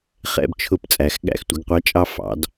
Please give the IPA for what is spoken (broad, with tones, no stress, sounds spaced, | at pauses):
χ ɛ̰˧ b t͡ʃʰ ʊ˧˩ p t͡sʼ æ˩˧ x ɠ æ̰˧˩˧ x tʷ ɪ˩˧ ɡ qʷ ɑ˨˥ t͡ʃʼ ɑ˧ f ɑ̰˩˧ d